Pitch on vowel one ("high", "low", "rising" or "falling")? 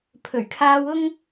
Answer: low